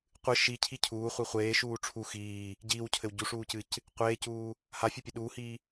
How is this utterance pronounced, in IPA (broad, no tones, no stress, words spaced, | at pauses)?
qʷɨ ʃi cʰicʰuː χʷiχʷeː ʃuːʈ͡ʂʰu xiː | ɟiːwcʰɘw ɟuʂuːcɨc | qʷeːcuː | hafʲopʲe ɗuːhiː